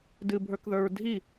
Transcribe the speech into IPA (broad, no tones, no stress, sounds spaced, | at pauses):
d ɨ bʱ ə˞ k ð ə˞ ɹ dʱ i